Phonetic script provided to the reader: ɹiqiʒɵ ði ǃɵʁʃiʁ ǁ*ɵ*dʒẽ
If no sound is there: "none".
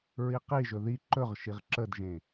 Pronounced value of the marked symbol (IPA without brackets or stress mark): ə